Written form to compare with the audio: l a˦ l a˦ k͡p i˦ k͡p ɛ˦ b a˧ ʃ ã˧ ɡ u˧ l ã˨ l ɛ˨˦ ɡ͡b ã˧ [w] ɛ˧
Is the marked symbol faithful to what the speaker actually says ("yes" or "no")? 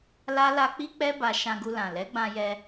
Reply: no